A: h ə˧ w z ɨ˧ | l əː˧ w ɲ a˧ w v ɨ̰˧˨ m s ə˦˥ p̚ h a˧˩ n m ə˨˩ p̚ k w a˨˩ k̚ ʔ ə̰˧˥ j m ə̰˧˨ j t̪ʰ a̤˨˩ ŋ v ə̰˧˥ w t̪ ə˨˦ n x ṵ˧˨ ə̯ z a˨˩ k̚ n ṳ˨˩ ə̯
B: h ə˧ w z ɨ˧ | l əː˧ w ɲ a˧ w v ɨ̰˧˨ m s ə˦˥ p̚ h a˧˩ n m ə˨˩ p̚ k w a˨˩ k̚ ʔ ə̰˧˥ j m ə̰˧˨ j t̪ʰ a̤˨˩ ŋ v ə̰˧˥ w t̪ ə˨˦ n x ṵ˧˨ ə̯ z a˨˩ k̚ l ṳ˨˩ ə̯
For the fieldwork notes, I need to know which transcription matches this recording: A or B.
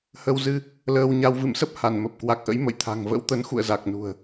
A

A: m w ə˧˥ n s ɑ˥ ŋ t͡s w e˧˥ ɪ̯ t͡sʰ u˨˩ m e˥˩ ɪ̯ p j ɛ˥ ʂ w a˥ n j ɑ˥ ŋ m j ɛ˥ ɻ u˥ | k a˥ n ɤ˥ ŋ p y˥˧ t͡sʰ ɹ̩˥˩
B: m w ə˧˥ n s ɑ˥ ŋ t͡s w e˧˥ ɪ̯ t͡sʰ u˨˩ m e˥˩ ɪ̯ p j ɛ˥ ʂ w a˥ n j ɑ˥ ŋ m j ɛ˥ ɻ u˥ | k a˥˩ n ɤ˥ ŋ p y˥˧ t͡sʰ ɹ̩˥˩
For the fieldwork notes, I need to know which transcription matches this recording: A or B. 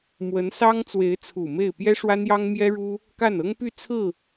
B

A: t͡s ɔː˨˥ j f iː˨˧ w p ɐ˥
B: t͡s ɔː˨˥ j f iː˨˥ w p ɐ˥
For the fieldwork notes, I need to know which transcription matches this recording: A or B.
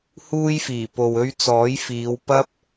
A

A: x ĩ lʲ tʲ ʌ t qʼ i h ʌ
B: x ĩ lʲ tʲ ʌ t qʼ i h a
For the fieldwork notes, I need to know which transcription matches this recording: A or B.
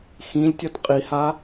B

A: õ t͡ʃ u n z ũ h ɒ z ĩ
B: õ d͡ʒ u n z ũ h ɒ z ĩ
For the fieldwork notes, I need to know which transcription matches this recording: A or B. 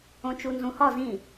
A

